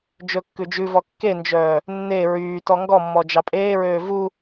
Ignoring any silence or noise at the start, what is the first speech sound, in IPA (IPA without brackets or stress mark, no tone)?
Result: d͡ʒ